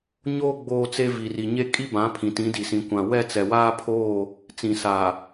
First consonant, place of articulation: palatal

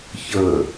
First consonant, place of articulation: palatal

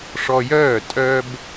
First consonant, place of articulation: retroflex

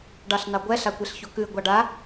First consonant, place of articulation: retroflex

